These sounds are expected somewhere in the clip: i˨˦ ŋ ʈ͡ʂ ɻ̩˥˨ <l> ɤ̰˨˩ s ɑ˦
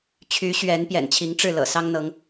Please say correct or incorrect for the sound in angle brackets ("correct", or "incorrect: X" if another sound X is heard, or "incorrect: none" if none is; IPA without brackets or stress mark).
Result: correct